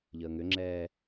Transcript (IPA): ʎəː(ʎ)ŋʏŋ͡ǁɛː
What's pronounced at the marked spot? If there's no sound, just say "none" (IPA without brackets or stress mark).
none